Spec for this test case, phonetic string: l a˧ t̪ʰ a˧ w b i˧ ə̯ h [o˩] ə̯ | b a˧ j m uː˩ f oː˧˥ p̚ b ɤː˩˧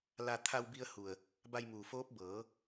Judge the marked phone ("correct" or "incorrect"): incorrect